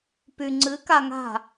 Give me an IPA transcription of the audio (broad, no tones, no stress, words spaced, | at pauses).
py ŋ͡ǀɨ kaŋa̤